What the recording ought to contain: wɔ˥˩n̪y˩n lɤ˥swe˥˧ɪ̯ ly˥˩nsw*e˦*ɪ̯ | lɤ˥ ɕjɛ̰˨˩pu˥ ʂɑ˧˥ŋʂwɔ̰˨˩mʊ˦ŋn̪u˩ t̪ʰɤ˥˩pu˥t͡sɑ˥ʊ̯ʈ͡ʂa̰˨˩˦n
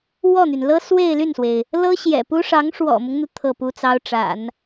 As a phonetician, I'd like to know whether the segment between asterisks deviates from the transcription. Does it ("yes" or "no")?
yes